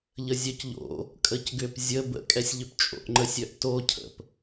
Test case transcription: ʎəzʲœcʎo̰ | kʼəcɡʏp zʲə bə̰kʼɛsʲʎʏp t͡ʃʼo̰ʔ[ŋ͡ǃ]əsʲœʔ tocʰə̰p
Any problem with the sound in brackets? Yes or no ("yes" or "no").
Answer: no